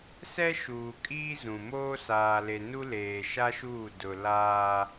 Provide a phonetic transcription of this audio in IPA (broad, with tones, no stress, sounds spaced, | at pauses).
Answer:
s ɛ˦ ʃ uː˨ kʼ iː˦ z ũ˨ m oː˦ s aː˨ l e˨ n u˦ l eː˨ ʃ a˦ ʃ uː˦˨ d ʊ˨ l aː˦